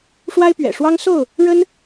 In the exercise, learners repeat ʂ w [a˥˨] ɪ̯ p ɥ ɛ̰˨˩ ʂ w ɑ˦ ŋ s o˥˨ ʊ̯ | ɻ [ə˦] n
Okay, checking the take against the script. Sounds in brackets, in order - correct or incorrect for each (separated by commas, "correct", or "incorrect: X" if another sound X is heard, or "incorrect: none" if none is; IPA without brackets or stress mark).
incorrect: a˦, correct